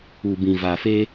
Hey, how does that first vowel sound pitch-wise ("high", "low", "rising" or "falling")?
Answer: low